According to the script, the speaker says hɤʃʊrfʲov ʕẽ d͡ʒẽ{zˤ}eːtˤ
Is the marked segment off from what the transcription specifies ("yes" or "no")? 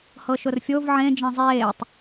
no